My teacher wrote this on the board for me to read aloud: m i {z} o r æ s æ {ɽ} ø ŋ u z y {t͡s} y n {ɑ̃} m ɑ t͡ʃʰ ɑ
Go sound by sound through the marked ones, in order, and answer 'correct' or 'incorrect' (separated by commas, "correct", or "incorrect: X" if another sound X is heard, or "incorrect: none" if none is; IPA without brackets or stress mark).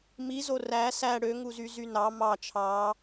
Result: correct, correct, incorrect: z, incorrect: ɑ